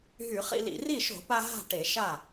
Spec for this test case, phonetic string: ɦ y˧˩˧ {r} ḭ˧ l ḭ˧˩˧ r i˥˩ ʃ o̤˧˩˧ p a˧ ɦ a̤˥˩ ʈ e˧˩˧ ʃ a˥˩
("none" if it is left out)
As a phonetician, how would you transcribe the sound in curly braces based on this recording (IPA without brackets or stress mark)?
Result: χ